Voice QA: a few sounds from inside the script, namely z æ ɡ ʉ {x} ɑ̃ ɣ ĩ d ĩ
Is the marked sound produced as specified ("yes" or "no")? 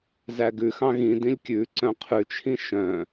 yes